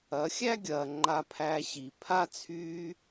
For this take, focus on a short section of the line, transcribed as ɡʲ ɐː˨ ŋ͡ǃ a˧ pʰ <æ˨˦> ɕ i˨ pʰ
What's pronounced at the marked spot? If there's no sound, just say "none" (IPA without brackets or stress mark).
æ˧